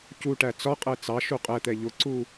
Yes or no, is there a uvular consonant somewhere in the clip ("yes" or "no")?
yes